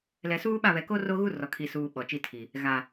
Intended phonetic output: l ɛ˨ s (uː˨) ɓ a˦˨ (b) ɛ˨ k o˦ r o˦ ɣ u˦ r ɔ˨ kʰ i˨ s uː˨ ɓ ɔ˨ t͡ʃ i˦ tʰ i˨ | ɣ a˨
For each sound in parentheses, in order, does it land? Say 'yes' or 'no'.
no, no

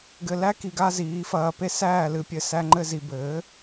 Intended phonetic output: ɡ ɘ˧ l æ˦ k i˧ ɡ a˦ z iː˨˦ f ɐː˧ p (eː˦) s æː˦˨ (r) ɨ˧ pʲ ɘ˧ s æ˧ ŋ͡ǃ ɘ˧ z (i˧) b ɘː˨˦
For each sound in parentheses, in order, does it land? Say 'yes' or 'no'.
no, no, yes

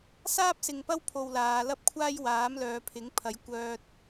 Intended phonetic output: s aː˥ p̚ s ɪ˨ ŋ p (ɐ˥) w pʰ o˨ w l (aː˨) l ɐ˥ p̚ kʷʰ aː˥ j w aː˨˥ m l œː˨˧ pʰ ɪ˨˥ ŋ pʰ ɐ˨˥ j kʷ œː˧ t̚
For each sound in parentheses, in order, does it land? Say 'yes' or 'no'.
yes, no

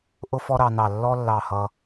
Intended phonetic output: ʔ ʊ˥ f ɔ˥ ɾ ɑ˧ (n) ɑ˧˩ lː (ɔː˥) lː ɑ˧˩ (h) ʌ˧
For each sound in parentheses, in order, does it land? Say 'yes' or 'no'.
yes, no, yes

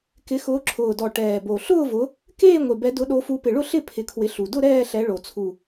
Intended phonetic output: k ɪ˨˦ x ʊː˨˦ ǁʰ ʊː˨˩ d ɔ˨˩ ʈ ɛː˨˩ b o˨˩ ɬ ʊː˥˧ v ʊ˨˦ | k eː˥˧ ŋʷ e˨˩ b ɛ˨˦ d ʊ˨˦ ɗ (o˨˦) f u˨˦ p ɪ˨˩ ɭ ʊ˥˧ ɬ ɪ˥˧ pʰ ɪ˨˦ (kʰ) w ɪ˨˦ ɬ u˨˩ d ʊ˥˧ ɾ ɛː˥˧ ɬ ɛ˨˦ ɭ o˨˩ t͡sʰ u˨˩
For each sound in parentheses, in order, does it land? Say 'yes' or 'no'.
yes, yes

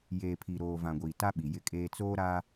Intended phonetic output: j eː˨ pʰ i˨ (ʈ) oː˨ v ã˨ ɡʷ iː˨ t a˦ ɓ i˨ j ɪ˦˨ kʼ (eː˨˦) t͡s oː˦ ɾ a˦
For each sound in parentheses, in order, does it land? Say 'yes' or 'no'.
no, no

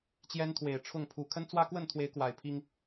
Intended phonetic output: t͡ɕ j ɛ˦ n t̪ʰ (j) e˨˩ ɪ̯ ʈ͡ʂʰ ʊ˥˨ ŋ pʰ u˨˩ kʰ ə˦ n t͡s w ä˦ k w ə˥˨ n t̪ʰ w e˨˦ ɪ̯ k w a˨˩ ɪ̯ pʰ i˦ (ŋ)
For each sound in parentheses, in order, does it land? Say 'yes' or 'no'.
no, yes

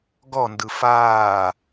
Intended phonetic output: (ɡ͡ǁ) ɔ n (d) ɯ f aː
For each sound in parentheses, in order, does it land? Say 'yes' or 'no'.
no, yes

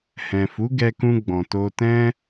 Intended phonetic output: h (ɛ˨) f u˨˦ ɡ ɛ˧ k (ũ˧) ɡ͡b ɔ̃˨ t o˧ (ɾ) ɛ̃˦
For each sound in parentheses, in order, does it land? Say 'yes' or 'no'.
no, yes, no

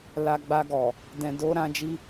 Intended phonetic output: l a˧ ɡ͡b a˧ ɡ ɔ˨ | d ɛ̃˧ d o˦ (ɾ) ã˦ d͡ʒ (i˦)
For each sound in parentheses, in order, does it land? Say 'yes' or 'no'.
yes, yes

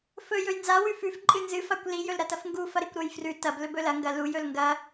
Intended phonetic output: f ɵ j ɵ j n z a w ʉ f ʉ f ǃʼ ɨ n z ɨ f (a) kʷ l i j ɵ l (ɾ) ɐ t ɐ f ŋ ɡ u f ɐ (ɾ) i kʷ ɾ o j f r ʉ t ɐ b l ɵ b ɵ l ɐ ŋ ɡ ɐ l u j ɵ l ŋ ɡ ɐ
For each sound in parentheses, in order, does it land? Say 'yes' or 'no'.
yes, yes, yes

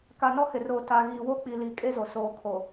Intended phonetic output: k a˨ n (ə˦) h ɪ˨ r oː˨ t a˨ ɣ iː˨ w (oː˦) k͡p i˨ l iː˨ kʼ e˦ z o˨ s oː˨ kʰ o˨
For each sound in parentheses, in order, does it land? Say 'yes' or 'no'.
no, no

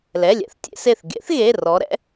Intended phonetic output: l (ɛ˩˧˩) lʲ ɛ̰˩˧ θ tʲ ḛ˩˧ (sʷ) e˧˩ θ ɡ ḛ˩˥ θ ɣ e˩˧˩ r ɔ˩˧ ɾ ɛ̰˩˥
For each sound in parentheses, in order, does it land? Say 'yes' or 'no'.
yes, no

